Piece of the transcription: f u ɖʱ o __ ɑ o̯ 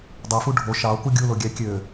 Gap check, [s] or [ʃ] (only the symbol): ʃ